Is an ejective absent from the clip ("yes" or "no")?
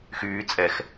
no